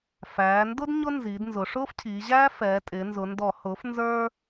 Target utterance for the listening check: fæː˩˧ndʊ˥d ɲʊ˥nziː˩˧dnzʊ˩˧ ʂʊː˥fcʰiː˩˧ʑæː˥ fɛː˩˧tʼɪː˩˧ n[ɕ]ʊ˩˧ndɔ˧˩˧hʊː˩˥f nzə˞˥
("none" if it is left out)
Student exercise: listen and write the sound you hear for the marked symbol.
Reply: z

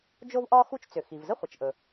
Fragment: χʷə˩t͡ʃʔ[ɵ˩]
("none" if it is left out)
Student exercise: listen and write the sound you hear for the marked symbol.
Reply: ɵ˩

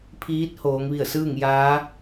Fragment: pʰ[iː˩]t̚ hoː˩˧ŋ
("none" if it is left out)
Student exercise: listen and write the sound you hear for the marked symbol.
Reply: iː˧˥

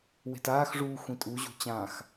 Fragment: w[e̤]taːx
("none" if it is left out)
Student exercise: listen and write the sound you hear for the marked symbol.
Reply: e̤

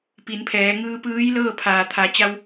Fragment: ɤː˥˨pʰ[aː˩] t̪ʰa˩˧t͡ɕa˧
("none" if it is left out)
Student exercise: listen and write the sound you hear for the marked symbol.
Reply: aː˩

